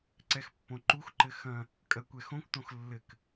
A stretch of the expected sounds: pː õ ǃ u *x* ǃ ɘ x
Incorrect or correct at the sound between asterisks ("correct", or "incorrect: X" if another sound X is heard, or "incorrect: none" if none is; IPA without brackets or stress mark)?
correct